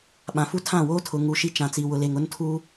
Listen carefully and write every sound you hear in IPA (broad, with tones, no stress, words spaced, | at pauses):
ɓã˨fu˦tʰã˦˨woː˦ tʰʊ˨ŋu˨ʃi˦ t͡ʃã˨t͡si˨ wʊ˨le˨ŋ ʊ˦ntʰu˦